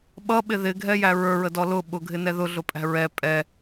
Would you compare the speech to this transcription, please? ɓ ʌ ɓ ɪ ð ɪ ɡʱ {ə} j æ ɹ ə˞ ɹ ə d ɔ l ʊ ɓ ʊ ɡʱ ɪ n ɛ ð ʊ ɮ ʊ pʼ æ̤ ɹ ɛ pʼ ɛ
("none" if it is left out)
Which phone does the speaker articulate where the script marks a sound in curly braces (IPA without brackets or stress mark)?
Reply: ɛ